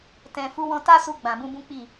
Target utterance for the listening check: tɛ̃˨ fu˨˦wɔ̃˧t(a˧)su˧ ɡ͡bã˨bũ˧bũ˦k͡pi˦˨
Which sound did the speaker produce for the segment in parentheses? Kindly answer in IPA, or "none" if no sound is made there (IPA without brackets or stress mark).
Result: a˦